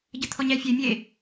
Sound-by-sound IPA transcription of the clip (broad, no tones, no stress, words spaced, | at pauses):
ɟət̪ʰɔɲæfʲe mʲe